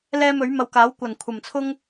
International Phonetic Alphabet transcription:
l ɛː˧ m ɵ˨˥ ɥ m ɐ˧ w k aː˨˥ w kʷ ɐ˨˩ n kʷʰ ɐ˨˩ m t͡sʰ ʊ˥ ŋ

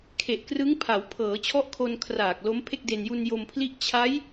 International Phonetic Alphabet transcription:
kʰ e˨˩ ʔ k r ɯ˦˥ ŋ pʰ a˩˦ w pʰ ɤː˩˦ t͡ɕʰ ɔ˥˩ ʔ kʰ o˧ n kʰ r aː˨˩ k̚ l o˦˥ m pʰ e˥˩ k̚ d e˧ n j u˧ n j o˧ m pʰ l i˥˩ ʔ t͡ɕʰ a˦˥ j

